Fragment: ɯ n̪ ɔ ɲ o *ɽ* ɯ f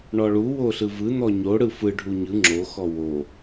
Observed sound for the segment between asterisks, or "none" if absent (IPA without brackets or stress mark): ɽ